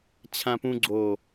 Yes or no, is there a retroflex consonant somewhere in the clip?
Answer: no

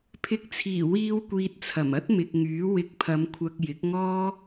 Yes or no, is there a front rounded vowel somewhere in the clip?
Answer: yes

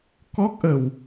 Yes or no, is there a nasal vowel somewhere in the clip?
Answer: no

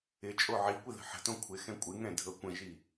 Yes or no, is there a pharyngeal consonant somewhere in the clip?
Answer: yes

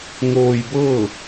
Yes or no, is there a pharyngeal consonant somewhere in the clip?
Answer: no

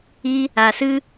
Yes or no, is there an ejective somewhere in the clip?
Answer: no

